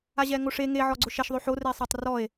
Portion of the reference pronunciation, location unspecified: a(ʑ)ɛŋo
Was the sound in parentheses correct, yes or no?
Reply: yes